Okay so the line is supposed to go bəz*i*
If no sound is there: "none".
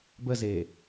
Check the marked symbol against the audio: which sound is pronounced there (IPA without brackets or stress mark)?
e